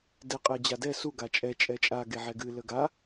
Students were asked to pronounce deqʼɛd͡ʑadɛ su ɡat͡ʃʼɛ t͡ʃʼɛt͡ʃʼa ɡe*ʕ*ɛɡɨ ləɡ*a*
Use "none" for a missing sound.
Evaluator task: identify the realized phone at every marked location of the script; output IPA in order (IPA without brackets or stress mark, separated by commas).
ʕ, a